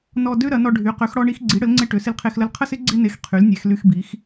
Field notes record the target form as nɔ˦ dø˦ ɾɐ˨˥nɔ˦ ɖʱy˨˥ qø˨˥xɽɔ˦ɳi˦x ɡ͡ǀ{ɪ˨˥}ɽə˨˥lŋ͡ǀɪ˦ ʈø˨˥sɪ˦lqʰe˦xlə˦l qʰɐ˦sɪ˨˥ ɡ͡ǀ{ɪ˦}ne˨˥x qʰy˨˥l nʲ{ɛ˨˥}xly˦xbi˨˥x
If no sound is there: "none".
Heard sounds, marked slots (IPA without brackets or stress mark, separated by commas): i˨˥, ɪ˦, ɛ˨˥